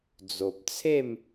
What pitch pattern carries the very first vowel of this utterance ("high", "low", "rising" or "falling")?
low